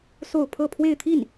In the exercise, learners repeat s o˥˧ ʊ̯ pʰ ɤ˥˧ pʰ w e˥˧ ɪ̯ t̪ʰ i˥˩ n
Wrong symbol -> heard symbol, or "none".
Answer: none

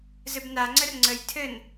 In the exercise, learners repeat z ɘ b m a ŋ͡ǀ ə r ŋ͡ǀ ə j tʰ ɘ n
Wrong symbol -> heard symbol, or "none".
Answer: m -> n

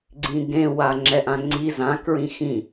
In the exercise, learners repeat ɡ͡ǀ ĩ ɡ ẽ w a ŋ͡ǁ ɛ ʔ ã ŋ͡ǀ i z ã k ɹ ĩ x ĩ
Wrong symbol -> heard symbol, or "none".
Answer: none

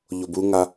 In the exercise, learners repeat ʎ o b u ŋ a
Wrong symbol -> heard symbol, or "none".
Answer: none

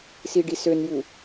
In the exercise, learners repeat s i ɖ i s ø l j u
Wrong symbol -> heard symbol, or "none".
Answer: l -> n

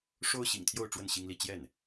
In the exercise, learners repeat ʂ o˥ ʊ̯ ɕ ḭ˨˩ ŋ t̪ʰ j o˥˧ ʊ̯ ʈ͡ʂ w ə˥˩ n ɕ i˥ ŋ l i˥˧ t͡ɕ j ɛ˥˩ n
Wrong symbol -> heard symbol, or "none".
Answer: none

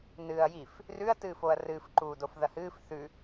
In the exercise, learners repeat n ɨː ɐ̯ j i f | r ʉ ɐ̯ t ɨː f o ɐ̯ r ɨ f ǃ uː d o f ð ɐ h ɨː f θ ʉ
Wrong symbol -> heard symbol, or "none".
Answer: none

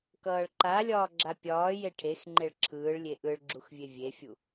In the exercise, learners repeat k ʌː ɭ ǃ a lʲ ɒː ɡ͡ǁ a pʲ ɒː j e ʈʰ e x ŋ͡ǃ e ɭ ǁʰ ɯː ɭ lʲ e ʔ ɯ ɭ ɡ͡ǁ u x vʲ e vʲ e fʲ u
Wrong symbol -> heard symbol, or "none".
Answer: none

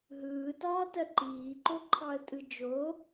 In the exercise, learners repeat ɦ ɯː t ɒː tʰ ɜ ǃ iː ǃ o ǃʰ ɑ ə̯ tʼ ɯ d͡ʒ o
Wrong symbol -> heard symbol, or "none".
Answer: tʰ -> t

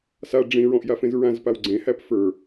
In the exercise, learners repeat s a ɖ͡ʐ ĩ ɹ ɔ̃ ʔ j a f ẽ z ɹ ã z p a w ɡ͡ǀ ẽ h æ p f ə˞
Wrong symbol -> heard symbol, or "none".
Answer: none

